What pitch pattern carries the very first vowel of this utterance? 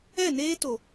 falling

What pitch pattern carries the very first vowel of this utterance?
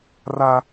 high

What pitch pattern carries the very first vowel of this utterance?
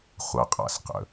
low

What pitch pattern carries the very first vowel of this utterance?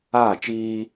falling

